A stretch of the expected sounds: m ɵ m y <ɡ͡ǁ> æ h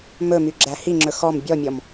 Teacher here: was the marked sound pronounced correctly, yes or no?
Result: yes